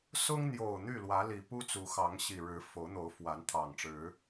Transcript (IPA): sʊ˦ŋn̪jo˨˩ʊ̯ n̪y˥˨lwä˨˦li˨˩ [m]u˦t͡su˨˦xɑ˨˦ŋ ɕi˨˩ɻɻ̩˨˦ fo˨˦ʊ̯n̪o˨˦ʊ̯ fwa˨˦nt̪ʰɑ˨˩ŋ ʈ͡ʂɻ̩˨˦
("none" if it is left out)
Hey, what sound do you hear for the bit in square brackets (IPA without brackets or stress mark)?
p